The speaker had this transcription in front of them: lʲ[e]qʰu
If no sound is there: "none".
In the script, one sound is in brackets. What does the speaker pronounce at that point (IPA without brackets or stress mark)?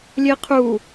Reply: e